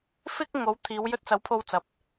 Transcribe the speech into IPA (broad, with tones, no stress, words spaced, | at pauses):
fɪ˥k̚ ŋo˨˥wt̪ʰiː˨˧w jɵ˧t̚t͡sɐ˨˥wpʰo˧wt͡sɐ˨p̚